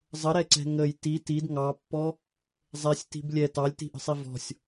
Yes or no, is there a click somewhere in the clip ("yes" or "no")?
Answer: yes